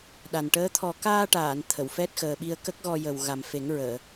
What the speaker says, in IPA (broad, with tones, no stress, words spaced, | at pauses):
ɗa˨˩n ʈəː˧˥ t̪ʰɔ˨˩kaː˧ʈaː˨˩˨n t̪ʰə˨˩˨wfɛ˦˥t̚xəː˨˩ɓi˧ə̯ kə˦˥k̚ɣɔ˧ jə˨˩w ɣa˨˩mfe˨˩˦ŋɹəː˨˩˨